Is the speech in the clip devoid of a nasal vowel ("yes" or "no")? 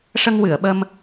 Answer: yes